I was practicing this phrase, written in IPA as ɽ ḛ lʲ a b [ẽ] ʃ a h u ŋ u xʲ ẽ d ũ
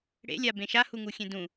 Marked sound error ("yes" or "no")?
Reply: no